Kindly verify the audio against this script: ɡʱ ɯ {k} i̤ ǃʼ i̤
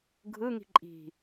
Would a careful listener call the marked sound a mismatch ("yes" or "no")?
yes